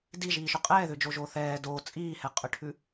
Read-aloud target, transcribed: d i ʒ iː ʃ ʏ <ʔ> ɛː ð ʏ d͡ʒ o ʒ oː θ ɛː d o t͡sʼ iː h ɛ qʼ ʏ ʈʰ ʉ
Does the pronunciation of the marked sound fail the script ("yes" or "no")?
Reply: yes